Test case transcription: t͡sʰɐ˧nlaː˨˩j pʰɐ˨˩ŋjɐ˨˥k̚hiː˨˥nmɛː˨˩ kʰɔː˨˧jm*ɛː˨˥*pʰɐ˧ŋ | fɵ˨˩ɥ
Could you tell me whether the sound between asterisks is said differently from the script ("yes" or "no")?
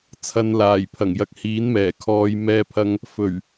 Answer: yes